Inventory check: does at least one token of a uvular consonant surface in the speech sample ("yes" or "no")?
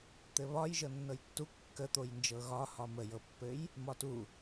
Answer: no